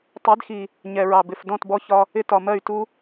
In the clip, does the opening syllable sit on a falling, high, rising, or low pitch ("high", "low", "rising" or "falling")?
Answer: rising